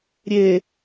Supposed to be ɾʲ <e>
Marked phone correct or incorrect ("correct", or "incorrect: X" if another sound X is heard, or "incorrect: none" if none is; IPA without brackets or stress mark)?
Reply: correct